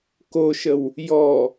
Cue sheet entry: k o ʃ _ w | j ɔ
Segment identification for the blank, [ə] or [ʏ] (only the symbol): ə